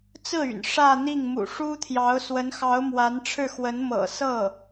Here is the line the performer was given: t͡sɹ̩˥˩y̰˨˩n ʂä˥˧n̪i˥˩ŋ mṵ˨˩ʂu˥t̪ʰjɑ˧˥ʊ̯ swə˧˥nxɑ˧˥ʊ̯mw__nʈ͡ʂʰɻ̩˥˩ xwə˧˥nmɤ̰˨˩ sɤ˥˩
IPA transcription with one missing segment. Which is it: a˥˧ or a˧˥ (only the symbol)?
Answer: a˧˥